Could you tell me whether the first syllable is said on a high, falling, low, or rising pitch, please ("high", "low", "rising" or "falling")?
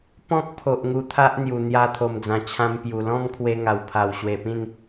high